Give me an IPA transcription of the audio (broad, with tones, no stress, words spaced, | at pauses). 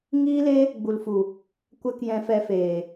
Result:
ŋiː˦le˦ | ɡ͡bu˨lfu˨ | kʷɛ˦kjɛ̃˧fɛ˧feː˨